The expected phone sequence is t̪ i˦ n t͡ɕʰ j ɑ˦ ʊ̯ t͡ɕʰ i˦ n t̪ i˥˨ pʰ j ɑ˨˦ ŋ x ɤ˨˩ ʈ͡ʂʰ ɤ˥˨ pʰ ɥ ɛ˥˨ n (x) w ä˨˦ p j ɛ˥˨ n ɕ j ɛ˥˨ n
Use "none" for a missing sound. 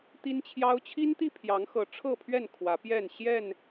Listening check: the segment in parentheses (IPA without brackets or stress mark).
kʰ